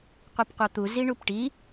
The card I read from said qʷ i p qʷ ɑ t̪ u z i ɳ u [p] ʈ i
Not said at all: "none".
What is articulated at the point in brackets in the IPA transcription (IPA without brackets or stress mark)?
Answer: p